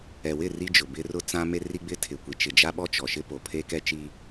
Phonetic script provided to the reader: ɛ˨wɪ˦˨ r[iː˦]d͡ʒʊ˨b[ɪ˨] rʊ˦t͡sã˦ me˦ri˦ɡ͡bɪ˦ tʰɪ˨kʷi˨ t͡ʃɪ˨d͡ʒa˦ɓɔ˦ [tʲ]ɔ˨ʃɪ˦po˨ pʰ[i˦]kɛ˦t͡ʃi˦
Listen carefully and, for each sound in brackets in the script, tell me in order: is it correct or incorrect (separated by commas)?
incorrect, incorrect, incorrect, incorrect